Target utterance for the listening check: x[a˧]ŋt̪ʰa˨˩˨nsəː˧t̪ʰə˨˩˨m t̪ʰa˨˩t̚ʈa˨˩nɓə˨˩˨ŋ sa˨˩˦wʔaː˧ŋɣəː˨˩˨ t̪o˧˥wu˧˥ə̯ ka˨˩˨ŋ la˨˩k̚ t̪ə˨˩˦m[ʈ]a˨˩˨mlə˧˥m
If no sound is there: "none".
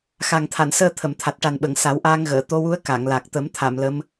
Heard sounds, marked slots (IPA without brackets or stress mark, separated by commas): a˨˩, t̪ʰ